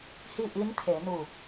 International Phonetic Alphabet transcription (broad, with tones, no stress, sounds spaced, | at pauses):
h i˥˨ ʔ i˧˥ n t̪ʰ e˩˧ n u˧˩